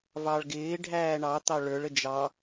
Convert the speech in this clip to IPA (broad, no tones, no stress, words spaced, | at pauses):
vɑɭɡɪː ɖʱæːɳɑt̪ɑ ɭə˞ɭə d͡ʒɑ